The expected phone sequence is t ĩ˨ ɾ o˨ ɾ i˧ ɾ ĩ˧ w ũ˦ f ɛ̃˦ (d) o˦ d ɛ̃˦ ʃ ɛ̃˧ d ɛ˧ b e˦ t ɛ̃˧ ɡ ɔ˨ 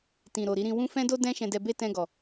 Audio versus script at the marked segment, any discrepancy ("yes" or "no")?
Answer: no